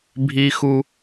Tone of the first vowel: high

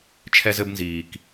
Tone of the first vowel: high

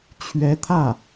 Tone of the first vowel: rising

